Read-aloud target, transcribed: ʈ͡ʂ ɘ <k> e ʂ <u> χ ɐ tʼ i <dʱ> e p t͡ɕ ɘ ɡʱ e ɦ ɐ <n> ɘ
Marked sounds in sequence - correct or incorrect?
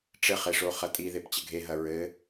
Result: incorrect, incorrect, incorrect, incorrect

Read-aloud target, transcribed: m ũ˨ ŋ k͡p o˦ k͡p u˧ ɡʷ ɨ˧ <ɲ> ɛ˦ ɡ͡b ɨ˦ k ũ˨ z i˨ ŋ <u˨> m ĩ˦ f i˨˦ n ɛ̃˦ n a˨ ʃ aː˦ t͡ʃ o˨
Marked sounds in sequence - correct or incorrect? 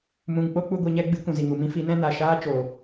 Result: correct, correct

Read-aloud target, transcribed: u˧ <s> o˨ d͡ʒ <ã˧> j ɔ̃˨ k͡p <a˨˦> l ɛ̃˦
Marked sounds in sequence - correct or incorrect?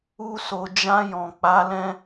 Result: correct, correct, correct

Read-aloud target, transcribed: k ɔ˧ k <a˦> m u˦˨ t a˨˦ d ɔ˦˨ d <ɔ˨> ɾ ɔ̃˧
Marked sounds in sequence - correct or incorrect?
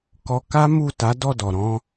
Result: correct, correct

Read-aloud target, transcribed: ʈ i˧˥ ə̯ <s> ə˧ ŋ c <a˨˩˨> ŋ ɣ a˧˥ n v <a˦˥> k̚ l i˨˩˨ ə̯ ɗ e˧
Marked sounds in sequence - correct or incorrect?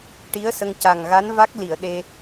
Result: correct, incorrect, correct

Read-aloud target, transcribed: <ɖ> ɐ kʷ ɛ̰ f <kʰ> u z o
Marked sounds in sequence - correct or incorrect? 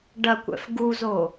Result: correct, incorrect

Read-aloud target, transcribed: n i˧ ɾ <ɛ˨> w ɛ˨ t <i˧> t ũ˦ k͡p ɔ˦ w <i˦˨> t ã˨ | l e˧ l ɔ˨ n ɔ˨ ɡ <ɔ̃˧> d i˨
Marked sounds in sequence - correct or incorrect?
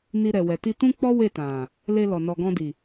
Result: correct, correct, incorrect, correct

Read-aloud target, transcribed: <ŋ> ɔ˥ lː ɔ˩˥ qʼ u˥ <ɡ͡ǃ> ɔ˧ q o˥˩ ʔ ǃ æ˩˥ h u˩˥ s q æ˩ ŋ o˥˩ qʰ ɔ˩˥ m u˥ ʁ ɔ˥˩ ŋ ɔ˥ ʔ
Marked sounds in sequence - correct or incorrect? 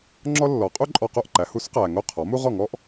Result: incorrect, incorrect

